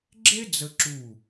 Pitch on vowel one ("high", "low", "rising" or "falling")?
high